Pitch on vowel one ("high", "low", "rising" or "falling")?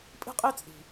high